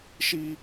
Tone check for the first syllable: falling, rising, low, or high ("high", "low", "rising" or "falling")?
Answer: high